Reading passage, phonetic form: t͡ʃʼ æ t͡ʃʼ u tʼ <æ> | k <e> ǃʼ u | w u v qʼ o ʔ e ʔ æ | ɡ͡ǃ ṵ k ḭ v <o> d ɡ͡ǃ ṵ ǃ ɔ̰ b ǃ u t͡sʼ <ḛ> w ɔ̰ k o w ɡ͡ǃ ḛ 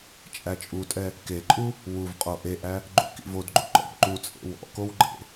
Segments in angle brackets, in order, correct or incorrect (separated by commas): incorrect, correct, correct, correct